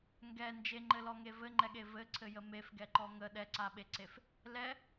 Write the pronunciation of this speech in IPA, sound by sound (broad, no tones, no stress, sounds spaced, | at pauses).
ŋ ɡ ɛ n d͡ʒ e ŋ͡ǃ ɘ l ɔ ŋ e v ɘ ŋ͡ǃ ɛ ɠ e v ɘ ǀʰ ɘ j ə m e f ɡ ɛ ǃ ɔ ŋ ə ɗ ɛ ǀ a ɓ e ǀ e f | l ɛ